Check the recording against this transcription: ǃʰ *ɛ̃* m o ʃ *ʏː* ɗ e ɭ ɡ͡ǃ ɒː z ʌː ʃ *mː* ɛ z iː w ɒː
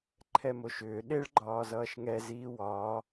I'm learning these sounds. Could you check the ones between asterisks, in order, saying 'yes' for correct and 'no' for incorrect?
no, yes, no

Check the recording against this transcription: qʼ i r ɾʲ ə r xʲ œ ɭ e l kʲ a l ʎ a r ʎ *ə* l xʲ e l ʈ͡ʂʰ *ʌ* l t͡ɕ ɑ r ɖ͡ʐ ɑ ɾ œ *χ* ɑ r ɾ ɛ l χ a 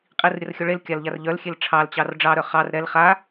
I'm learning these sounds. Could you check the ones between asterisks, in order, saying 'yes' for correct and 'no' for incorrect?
no, no, yes

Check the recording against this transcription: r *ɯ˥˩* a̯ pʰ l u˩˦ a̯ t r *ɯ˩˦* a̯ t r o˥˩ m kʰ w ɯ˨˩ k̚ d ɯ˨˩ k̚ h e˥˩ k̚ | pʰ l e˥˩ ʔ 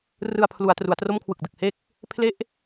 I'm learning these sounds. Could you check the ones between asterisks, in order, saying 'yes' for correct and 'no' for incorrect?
no, no

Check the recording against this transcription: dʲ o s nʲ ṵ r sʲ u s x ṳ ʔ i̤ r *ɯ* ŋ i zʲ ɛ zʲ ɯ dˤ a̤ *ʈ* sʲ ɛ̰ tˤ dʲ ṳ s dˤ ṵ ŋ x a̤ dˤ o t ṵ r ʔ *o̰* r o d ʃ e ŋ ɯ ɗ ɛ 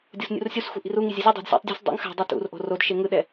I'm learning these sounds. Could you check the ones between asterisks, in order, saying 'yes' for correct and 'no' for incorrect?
no, no, no

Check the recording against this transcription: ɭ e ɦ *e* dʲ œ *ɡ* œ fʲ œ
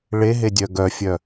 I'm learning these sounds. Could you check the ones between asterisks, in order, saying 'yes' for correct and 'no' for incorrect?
yes, yes

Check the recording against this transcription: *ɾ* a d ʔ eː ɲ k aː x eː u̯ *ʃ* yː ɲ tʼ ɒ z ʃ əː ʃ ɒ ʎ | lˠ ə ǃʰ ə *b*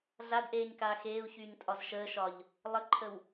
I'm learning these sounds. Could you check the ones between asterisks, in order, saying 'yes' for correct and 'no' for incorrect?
no, no, no

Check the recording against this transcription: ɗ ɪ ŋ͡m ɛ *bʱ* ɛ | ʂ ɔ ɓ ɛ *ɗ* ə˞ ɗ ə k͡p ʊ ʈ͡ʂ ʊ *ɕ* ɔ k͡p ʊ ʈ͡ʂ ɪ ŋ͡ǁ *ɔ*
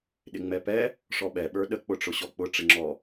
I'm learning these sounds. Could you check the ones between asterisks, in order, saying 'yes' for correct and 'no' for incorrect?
no, no, yes, yes

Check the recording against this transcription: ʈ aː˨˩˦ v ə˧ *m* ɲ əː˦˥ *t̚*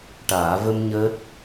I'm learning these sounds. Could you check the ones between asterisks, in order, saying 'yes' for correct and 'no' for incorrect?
yes, yes

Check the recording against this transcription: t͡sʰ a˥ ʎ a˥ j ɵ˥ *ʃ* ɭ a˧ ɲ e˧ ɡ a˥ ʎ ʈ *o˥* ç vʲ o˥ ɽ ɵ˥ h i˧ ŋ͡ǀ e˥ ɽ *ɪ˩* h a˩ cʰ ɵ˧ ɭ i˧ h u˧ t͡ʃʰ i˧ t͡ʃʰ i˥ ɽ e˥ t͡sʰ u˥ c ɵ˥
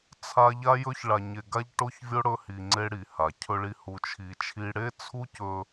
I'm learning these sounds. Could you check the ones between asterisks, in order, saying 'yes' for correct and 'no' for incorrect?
no, yes, no

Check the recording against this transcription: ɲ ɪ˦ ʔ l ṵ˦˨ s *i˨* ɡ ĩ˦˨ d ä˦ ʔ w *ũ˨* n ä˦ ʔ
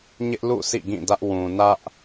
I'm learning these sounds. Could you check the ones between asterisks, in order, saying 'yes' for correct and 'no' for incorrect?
no, yes

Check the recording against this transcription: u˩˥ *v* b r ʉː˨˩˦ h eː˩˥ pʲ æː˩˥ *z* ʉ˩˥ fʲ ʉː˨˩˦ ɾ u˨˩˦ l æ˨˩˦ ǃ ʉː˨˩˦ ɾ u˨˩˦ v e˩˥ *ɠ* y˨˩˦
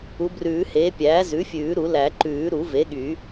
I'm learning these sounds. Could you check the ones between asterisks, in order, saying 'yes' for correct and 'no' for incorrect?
no, yes, yes

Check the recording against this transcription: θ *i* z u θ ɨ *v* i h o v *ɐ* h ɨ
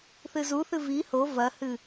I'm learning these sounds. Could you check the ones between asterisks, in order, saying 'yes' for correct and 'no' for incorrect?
no, yes, yes

